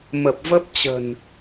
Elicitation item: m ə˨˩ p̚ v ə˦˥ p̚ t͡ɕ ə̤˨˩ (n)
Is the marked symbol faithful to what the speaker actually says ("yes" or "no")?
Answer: yes